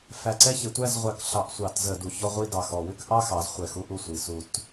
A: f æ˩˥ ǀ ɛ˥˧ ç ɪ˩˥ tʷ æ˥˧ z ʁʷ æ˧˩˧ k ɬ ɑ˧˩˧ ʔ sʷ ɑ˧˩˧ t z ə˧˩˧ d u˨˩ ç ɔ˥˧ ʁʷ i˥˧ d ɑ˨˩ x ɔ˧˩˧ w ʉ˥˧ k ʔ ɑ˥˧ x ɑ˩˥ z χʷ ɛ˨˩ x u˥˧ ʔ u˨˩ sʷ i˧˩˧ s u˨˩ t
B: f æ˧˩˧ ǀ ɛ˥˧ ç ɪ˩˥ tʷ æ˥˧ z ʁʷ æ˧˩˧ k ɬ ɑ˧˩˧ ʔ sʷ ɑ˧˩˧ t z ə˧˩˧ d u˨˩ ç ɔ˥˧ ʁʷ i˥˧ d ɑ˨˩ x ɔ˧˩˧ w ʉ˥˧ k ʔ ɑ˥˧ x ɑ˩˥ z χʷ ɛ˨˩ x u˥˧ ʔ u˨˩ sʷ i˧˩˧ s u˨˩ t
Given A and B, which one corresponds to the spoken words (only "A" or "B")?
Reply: B